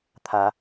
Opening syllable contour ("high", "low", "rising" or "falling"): rising